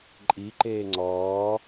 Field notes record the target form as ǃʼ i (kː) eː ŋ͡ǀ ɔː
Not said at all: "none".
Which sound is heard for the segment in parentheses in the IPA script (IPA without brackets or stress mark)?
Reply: ǃ